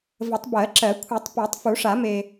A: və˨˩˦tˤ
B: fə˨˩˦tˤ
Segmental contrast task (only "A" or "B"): A